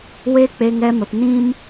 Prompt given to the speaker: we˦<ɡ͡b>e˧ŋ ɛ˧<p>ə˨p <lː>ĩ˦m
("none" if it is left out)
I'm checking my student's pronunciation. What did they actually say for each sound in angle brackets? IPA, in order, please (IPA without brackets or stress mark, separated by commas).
k͡p, m, n